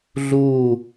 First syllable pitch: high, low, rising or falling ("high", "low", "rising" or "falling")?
falling